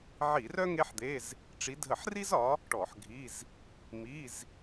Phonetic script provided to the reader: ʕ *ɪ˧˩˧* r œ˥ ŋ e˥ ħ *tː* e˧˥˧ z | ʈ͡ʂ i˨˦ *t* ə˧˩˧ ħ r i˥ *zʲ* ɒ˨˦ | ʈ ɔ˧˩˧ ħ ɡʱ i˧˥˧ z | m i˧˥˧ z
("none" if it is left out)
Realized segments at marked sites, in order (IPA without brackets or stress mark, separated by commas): i˧˩˧, d̪, dʱ, z